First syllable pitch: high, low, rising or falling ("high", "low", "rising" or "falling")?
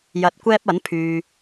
low